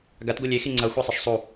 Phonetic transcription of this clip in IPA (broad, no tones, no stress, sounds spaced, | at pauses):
ɡ a t ɡʷ ɯ lʲ e x i ŋ͡ǀ ʌ xʷ e sˤ e ʃ sˤ u